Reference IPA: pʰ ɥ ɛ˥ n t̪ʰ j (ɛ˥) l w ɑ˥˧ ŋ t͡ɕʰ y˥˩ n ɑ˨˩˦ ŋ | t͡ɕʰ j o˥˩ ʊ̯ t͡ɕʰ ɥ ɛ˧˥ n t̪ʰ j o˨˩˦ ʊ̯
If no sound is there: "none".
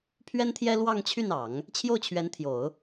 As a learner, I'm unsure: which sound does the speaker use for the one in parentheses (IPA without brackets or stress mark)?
ɛ˥